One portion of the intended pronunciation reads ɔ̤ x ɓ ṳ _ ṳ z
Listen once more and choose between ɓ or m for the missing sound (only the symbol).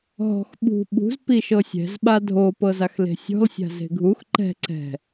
ɓ